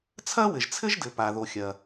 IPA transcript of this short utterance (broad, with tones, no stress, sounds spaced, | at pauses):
t͡sʰ ɐ˥ w ɘ˩ ʒ t͡sʰ ɘ˥ ʒ d ɘ˩ p a˩ ð o˩ xʲ ɐ˩